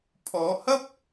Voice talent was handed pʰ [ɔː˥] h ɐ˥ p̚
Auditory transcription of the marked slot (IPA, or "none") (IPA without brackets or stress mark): ɔː˨˧